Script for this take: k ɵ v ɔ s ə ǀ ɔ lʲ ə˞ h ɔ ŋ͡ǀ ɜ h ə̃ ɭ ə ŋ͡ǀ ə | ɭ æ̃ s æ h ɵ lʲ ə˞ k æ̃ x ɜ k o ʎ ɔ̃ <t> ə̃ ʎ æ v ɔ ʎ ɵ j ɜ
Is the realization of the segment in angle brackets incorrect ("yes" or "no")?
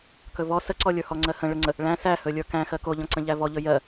yes